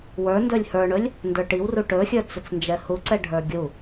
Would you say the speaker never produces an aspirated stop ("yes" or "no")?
yes